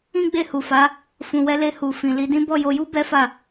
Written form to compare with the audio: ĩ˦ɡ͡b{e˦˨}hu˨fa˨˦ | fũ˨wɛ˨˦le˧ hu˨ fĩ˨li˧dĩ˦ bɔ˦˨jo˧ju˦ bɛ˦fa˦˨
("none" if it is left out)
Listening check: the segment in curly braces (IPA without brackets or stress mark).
e˦˨